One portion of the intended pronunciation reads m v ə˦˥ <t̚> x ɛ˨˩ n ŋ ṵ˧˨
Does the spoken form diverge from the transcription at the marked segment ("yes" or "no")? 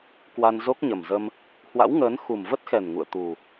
no